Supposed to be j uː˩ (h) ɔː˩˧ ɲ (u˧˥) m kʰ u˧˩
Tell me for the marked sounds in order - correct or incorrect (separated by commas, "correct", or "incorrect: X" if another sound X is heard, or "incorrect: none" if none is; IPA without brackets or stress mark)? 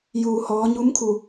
correct, correct